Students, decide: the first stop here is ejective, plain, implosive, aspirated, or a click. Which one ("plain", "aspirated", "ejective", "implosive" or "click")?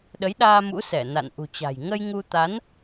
implosive